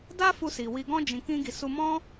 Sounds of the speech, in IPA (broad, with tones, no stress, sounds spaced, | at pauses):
d a˦ f u˧ s i˨ w i˧ ɡ ɔ̃˦ d͡ʒ ĩ˧ k ĩ˦ ɡ i˧ s u˧ m ɔ̃˦